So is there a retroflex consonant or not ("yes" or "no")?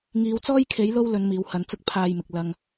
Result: no